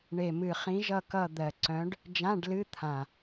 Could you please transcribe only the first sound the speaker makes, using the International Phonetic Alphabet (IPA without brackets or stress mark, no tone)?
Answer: ɳ